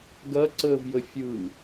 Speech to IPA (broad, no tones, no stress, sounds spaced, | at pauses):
ɡ ɐ ǀ əː v j ə fʲ ɯ